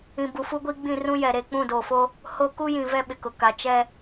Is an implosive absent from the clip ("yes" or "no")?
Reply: no